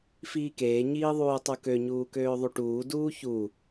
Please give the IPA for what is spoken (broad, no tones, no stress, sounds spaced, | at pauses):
f iː k eː ɲ iː ðˤ uː tˤ u k ø ɲ uː k øː ðˤ u ʈ uː d uː ç u